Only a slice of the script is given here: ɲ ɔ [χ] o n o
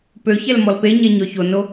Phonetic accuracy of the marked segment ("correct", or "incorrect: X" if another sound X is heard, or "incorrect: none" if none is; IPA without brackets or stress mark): incorrect: ç